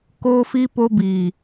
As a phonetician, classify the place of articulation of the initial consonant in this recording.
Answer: velar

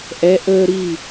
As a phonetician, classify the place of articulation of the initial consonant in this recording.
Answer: glottal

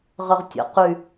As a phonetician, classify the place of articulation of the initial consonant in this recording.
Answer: uvular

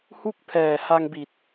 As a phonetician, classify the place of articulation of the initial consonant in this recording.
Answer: glottal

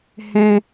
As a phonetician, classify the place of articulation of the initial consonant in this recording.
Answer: glottal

